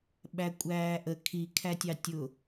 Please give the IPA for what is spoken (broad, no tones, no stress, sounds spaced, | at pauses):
ɓ æ kʷʼ æː ʔ ə kʰ i kʰ æ tʲ ɑ tʲ ʊ